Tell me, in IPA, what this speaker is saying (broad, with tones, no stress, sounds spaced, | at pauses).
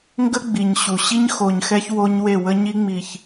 ŋ ɡ ə˦ ɡ͡b i˨ ɲ ɕ u˨ ɕ i˦ ɲ x o˨ ɲ x ɛ˦ ç w o˦ ɲ w e˦˨ w ə˦ ɲ i˦ ŋ͡m i˨ ç